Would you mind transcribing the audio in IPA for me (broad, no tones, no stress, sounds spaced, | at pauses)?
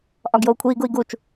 ʔ ɒ ɡ j o u̯ kʷʰ iː ɡ u i̯ ɡ u t͡ʃ